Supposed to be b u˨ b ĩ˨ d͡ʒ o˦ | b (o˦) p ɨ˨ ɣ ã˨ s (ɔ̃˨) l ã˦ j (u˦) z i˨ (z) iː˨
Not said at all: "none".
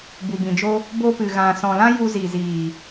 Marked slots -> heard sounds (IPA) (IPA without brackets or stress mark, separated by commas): o˧, ɔ̃˨, u˧, z